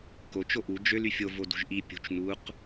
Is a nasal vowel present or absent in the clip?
absent